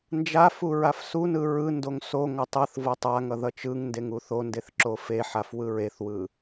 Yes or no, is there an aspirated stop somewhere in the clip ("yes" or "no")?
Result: no